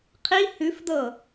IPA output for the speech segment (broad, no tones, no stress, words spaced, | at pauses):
qʰi hʉfdɤ